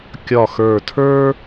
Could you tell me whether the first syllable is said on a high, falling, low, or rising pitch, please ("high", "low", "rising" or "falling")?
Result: low